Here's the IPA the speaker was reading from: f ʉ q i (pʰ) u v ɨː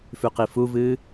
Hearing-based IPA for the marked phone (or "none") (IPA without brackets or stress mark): f